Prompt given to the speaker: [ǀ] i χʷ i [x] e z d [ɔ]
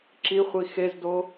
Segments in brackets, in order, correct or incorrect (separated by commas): incorrect, correct, incorrect